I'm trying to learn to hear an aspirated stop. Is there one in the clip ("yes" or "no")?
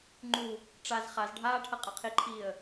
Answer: yes